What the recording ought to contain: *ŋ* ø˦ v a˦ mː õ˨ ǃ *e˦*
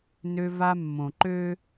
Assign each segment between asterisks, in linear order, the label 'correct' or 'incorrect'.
incorrect, incorrect

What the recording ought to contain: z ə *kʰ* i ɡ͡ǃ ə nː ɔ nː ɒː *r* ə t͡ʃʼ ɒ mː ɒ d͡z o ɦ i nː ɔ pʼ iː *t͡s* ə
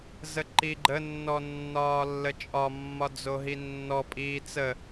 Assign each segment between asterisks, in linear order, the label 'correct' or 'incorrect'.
incorrect, incorrect, correct

